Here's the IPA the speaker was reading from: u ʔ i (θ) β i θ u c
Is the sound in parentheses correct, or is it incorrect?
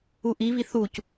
incorrect